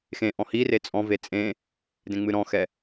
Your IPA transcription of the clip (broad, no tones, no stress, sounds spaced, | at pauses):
x ẽ ʔ ɔ̃ h i r e t͡sʼ ɔ̃ v e t͡sʼ ẽ | d ẽ ŋ͡m ɨ ɾ ɔ̃ x ɛ